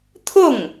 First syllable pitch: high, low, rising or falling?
falling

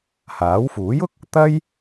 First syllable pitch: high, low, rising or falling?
rising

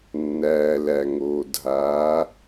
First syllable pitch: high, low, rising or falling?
low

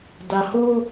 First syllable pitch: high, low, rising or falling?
low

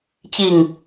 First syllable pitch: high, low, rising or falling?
falling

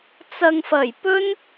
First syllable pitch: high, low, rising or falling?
low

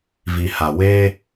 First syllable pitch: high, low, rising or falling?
low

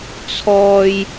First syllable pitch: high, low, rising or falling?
high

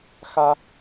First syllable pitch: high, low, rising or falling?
high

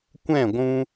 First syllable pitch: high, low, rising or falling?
falling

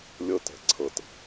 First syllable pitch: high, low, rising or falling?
high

